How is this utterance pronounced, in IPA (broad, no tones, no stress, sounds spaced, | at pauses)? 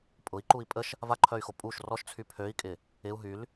pʼ ʊ i̯ ǃ u i̯ pʼ ə ʃ | v a ǃʰ œ y̯ x o pʼ u ʃ r ɔ ʃ t͡sʰ y pʰ ø i̯ kʼ ɪ | ɪ u̯ ɦ y l